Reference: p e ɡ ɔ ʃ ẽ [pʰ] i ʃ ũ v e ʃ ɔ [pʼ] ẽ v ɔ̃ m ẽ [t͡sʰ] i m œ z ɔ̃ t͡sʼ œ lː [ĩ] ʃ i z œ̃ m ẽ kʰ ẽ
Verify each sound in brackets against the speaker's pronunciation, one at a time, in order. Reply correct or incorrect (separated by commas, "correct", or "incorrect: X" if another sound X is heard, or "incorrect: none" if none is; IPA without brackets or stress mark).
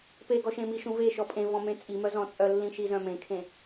incorrect: m, correct, incorrect: t͡sʼ, correct